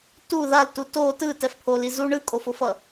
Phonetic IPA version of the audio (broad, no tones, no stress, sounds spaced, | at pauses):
t u ð a l t u t o t ɯ t ɛ f pʰ o l i z u ɳ ɯ kʼ o f o f ʌ